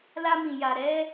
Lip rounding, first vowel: unrounded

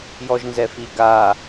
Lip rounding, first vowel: rounded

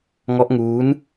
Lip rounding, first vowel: rounded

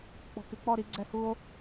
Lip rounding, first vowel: rounded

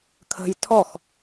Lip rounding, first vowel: unrounded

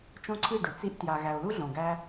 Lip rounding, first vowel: rounded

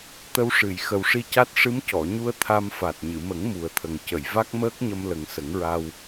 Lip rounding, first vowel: unrounded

